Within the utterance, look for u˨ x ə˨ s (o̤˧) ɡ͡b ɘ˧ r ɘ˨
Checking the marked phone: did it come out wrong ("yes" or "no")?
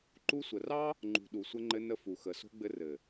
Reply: no